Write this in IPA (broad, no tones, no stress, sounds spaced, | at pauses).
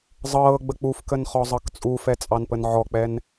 zˤ ɤː ɡ͡b ə k͡p u f k ə n χ ɔ zˤ ɤ k t͡sʼ u f ɛ t͡sʼ ɑ n p ə n ʕ ɔ k͡p ɛ n